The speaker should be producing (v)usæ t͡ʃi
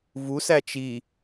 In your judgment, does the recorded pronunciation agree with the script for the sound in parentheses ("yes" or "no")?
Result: yes